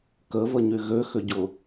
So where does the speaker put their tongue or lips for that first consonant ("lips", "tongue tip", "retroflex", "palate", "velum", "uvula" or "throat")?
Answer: velum